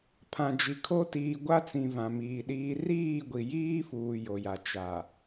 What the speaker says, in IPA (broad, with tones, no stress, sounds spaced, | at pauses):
pʰ ã˨ d͡ʒ i˨ kʰ o˦ t iː˨ ɡʷ a˦ t͡s ĩ˨ v ã˨ m iː˨ ɗ iː˦ r iː˦˨ ɡʷ i˨ j iː˦ f uː˨ j o˨ j a˨ t͡ʃ a˨